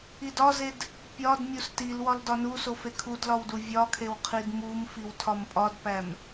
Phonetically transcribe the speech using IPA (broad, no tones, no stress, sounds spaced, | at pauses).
i d ɒ z e d | pʲ ɒ d mʲ u s t i l w ɒ l d ɒ n u s o f e kʰ u d l ɒ w d u vʲ ɒ kʰ e w qʰ i d m u m f i w tʰ ɒ m pʼ ɒ d p æ m